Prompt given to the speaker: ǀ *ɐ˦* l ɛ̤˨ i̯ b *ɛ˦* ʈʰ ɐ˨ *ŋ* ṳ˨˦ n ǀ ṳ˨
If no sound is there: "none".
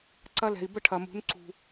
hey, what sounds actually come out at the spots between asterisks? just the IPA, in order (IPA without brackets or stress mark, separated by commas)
ɐ˦, ə˦, m